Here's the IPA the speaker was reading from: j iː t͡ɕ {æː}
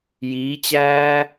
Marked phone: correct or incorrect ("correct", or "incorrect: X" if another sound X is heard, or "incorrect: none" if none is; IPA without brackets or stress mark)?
correct